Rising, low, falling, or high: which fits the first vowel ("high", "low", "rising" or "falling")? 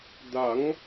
rising